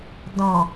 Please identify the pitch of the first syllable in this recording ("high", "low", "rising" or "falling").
low